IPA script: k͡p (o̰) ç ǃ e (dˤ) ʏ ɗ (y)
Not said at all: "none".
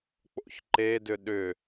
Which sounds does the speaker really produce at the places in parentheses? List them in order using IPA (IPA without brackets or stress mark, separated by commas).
o̰, d, ʏ